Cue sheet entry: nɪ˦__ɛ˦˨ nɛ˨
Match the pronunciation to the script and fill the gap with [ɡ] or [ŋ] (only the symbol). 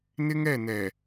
ŋ